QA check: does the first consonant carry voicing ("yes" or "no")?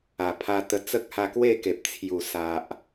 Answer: no